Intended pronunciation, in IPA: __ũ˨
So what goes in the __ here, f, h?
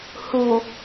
h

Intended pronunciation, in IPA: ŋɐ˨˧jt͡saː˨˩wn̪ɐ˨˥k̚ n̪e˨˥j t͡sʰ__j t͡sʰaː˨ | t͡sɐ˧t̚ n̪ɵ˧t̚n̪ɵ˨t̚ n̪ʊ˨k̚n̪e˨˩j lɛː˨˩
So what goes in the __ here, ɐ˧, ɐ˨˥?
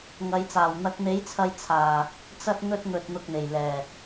ɐ˧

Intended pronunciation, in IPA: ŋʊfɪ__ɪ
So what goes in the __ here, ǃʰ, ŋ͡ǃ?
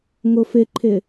ǃʰ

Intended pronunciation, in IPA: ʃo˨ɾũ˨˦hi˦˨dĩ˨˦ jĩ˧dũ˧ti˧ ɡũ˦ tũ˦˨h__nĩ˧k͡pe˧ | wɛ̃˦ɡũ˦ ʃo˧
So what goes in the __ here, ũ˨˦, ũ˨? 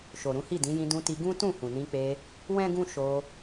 ũ˨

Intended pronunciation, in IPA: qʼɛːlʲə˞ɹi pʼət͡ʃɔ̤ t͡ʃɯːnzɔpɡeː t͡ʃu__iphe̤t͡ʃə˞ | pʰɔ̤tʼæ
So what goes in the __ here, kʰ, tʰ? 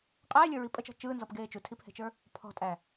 tʰ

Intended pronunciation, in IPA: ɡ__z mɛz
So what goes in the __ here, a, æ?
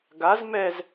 a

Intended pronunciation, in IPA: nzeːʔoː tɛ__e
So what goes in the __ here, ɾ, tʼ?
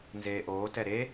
ɾ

